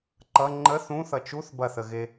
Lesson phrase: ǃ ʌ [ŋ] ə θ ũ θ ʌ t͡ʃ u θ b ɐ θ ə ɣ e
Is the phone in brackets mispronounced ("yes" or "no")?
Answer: yes